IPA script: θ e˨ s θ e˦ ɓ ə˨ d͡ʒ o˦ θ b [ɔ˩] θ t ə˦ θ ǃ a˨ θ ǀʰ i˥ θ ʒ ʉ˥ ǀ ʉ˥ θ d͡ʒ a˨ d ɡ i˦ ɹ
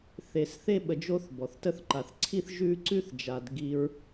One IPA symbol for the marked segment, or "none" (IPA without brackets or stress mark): ɔ˩